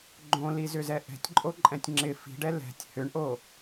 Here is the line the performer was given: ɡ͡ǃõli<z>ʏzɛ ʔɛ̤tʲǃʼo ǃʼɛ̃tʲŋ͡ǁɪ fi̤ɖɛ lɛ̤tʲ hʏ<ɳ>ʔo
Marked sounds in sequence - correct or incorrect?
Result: correct, correct

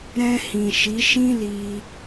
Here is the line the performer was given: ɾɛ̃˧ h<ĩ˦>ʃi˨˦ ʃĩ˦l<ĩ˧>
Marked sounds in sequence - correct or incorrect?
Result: incorrect, incorrect

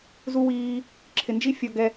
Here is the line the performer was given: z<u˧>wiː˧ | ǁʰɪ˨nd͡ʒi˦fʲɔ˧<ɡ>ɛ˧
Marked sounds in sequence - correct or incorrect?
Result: correct, correct

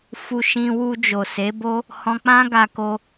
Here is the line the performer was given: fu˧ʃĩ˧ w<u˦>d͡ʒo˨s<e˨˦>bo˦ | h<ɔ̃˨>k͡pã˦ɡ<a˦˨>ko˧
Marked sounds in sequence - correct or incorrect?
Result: incorrect, correct, incorrect, incorrect

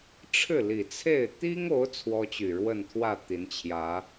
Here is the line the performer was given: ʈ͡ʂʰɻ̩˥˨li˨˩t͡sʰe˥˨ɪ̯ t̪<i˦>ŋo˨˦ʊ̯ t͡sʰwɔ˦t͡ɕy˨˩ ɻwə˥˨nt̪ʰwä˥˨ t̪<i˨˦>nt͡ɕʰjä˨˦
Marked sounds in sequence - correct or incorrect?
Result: correct, correct

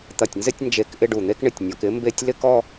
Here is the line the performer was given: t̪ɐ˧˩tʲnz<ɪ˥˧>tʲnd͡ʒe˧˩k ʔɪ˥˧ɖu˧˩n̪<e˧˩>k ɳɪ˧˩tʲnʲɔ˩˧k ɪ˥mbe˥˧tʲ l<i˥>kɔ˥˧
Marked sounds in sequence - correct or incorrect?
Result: correct, incorrect, incorrect

